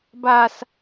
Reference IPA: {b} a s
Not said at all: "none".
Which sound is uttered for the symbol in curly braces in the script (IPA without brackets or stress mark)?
b